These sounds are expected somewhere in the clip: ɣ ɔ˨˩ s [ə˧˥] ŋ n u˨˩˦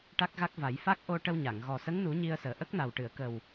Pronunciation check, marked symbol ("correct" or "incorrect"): correct